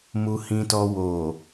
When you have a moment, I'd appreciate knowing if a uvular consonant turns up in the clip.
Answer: no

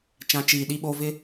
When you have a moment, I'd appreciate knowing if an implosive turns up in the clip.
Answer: yes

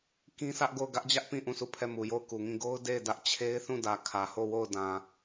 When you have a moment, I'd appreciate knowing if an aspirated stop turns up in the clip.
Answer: yes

